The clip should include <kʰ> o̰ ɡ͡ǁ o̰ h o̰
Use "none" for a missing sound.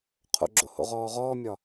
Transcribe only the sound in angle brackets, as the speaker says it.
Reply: qʰ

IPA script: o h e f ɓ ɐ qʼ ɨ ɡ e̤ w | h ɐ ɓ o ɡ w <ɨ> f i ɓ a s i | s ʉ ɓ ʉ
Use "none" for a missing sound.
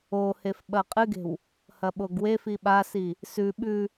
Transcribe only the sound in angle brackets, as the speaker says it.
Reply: e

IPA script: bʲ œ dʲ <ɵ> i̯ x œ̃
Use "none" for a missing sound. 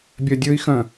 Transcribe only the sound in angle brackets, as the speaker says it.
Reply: ɵ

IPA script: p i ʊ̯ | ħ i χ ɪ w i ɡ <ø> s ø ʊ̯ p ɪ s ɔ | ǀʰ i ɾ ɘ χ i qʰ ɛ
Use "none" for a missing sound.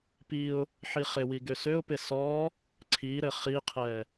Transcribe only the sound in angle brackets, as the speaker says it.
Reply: ø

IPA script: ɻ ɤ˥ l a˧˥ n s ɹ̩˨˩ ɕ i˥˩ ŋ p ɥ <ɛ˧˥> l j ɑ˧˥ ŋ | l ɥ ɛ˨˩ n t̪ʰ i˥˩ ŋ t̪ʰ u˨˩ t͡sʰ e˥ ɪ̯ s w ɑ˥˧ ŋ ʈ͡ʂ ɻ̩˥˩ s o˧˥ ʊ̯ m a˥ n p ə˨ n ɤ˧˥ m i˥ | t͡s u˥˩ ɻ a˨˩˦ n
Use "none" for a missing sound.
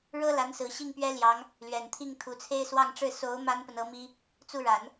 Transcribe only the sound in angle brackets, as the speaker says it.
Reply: ɛ˥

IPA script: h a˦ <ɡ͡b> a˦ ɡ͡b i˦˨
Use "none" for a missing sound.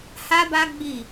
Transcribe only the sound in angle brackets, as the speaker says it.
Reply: b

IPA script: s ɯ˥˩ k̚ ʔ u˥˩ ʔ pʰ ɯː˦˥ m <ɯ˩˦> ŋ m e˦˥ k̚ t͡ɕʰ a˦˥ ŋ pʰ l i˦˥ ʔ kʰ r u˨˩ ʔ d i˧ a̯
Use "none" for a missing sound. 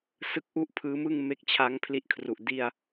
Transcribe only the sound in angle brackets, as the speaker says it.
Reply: ɯ˥˩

